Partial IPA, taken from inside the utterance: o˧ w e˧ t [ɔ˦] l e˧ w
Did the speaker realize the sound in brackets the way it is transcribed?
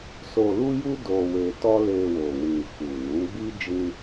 yes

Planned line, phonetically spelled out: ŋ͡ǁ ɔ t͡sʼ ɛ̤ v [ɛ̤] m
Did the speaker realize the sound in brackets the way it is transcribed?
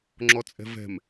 yes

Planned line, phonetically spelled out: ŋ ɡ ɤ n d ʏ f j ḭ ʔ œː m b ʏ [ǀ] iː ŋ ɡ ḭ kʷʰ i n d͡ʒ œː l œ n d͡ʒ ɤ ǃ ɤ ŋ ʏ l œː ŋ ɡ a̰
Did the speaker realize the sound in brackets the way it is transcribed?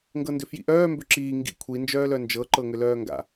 no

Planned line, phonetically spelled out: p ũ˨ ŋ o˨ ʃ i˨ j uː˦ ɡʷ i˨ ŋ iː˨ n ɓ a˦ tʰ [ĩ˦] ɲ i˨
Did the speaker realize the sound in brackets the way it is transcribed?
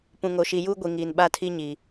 no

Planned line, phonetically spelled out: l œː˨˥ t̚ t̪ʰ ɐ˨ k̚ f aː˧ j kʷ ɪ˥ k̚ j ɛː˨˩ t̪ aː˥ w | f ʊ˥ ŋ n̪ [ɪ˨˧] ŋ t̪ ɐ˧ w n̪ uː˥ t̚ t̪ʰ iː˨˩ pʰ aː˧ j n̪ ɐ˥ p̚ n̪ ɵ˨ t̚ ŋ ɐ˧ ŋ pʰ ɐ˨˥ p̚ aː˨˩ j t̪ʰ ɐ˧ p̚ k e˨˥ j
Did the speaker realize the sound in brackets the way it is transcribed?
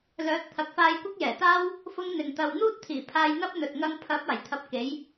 no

